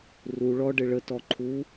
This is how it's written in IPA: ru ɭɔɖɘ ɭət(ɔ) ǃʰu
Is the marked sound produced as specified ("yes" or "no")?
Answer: yes